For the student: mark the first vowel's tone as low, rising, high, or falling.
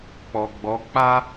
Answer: low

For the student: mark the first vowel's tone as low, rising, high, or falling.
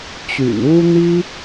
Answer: low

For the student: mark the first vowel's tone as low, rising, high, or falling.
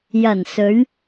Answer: low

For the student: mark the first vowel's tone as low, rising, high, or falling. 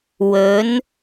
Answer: rising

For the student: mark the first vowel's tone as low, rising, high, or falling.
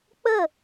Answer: falling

